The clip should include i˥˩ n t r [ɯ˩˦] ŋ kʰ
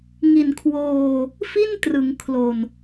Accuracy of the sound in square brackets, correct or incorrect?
correct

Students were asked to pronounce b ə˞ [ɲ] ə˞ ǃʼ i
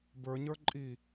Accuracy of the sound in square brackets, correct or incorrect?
correct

